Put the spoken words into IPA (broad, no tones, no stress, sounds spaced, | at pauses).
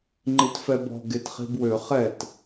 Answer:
ŋ͡ǃ i t f ɛ b ɔ̤ ɡ e t χ i̤ b w ø χ ɛ t